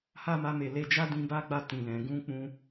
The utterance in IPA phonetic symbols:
h a˦ m a˧ m e˨ l e˧ d͡ʒ a˦ d ĩ˧ b a˦ ɡ͡b a˧ t ĩ˨ l ɛ̃˨ ɡ ũ˧ k͡p ũ˧

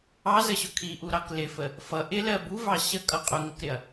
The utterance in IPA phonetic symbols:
ɑ z ə ɕ ʊ kʰ i ʔ u ɾ ɑ k l ɪ f ə | f ʌ ʔ ɪ l ɜ b u v ɑ ɕ ə kʼ ʌ qʼ ʊ ŋ ə k ɾ ɪ ɐ̯

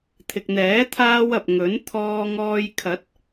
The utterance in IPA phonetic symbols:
t̪ʰ ɪ˨ k̚ n̪ ɛː˨˥ t̪ʰ aː˥ w ɐ˨ p̚ ŋ ɵ˨˥ n t̪ʰ ɔː˧ ŋ ɔː˧ j kʰ ɐ˨˥ t̚

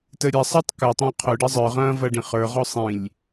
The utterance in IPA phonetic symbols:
t ə ɾʲ a sˤ ə˞ tˤ k ɐ tˤ ã qʰ ɵ ɖ ɐ zˤ ə˞ ʁ ɐ̃ː v ɐ ɖ ĩ χ ə˞ ʁ ɔ sˤ ĩ lʲ

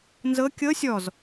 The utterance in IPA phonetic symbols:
n z ɤ kʲ ɤ sʲ ɔ z

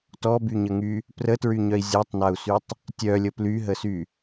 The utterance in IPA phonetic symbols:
t ɔ b y ɲ ə ŋ y | p r ə t ɹ y ɲ œ i̯ zʲ a tˤ n a u̯ s y tˤ | tʲ œ lʲ ə p l y ɦ ə s y

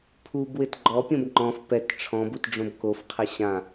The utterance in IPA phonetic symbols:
pʰ u b w ɪ t ɡ͡ǃ ɔ pʲ õ b ŋ͡ǃ ɔ̃ f p ɛ t ʈ͡ʂʰ ɔ̃ b u t ɖ͡ʐ õ b k o f qʰ ɛ ɕ ã

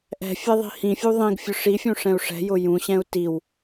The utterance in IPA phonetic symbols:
ʔ ɛ̤ fʲ ɛ ðˤ i̤ h ĩ fʲ u ðˤ ĩ ɡ fʲ ʊ ʂ i fʲ ũ ʂ ɛ̃ u̯ ʂ ɛ̤ j ʊ j ũ ɕ ɛ̃ u̯ t i w

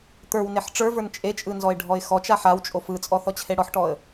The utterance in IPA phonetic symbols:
t̪ ə˞ w n e ħ ʈ͡ʂ ə˞ v ə˞ n t͡ʃʼ e t͡ʃʼ ɯ n z ɔ ɪ̯ ɖʱ ɔ ɪ̯ x ɔ t͡ʃ a ħ a w t͡ʃʼ o f ɯ t͡sʼ ɔ θ ɔ t͡ɕʰ e ɽ ɔ ħ ʈ ɔ ə̯

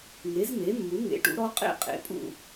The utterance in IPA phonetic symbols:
ŋ e˩˥ z m e˩˥ mː u˩˥ ŋ ḛ˩˥ ʈ ṵ˩˥ ɾ ɔ˦˥ qʼ ḛ˥˨ qʼ ḛ˩˥ pʼ ṵ˥˨

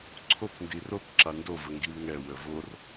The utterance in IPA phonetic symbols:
ǀʰ o k n d i r o k ǁ a n d o v ə ŋ ɡ i w ŋ ɛ w ə v o r

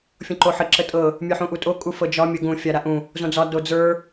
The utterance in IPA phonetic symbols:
fʲ õ ǃ o ħ ə ǁ ə tʼ ɤ | mʲ ə˞ ħ ũ ʔ u tʼ o kʼ u f ɤ d͡ʒ ɒ mʲ ə ɡ ũ fʲ a ɾ a ʔ ũ | z õ d͡z ɒ d o d͡z ə˞

